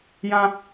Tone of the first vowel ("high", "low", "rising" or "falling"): low